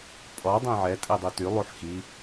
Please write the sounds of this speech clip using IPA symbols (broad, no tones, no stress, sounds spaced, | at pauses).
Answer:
pʼ ɔ dˤ ẽ ʕ ɛ tʼ e dˤ y t y lˠ u ħ x i